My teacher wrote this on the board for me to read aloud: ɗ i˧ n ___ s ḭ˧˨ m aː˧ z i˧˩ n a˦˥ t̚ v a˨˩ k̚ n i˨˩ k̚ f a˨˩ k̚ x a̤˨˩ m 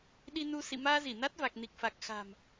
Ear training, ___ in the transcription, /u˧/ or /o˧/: u˧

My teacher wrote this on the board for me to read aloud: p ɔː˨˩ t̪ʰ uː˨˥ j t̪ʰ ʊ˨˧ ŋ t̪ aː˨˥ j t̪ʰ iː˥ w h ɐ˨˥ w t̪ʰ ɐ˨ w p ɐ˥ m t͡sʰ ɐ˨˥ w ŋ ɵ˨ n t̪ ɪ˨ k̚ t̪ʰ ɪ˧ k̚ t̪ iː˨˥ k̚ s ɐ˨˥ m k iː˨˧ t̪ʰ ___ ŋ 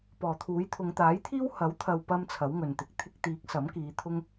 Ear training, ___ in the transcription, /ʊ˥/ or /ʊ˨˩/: ʊ˥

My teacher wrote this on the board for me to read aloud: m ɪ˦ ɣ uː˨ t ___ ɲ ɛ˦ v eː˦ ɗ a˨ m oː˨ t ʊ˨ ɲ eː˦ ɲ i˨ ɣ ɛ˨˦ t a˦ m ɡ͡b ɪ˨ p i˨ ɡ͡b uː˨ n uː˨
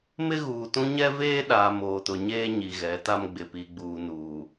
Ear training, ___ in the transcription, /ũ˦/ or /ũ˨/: ũ˦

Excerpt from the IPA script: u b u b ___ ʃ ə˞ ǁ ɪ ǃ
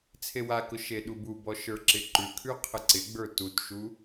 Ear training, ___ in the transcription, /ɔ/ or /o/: ɔ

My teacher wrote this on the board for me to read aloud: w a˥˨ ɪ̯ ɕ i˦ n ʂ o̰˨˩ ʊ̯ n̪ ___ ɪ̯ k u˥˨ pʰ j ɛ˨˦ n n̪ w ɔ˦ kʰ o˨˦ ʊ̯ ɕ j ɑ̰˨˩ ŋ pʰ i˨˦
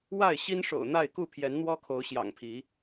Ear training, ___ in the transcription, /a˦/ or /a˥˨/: a˥˨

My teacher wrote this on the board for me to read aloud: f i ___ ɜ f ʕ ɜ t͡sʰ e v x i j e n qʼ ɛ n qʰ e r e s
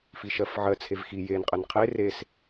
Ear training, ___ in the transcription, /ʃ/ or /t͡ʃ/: ʃ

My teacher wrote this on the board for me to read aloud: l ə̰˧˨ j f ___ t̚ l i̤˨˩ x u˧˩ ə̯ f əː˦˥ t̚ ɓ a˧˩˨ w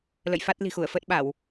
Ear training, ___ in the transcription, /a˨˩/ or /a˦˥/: a˦˥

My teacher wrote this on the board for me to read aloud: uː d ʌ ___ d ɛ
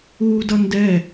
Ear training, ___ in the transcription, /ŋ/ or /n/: n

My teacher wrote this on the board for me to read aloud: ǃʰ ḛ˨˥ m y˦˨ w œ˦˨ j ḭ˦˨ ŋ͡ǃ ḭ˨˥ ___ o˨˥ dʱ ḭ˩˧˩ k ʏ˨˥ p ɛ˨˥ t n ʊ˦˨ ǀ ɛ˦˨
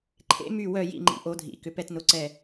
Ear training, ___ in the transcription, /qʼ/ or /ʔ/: ʔ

